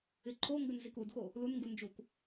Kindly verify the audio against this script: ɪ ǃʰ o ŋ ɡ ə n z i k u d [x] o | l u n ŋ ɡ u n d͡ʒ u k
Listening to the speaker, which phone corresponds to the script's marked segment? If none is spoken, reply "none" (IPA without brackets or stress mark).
x